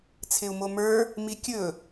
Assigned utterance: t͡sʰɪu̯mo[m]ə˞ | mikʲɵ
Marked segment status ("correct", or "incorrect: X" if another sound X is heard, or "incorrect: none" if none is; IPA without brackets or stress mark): correct